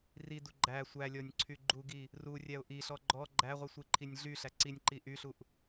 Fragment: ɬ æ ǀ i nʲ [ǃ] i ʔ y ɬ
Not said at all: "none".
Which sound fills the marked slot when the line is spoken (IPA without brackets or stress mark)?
ǃ